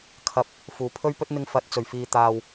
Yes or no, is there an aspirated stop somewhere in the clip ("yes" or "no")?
yes